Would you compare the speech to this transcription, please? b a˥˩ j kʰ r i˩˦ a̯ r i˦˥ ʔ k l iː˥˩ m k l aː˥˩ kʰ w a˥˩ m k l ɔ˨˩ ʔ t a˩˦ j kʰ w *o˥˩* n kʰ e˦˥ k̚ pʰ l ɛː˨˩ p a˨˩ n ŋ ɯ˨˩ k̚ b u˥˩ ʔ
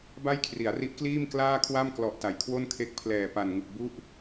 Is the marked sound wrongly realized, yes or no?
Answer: no